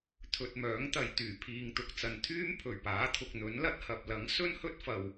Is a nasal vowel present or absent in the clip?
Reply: absent